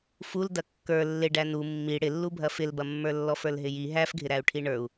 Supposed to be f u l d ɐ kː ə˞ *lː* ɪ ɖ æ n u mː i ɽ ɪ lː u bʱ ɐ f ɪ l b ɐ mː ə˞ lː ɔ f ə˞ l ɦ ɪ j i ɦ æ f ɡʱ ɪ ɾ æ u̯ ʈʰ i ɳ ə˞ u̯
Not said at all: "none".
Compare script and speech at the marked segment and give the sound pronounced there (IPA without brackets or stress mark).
lː